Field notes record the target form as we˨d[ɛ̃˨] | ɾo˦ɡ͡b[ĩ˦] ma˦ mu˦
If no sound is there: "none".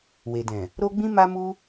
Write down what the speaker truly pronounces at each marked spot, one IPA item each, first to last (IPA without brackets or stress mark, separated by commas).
ɛ̃˨, ĩ˦